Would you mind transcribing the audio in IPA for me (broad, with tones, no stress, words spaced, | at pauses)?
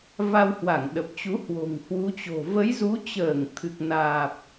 va˧whwa˧˩ŋɗə˨˩p̚t͡ɕu˨˦ hwo̤˨˩ŋhwu˨˦t͡ɕo̤˨˩ və˨˦jzu˨˦t͡ɕəː˧˩ŋ t̪ʰɨ˨˩k̚naː˨˩p̚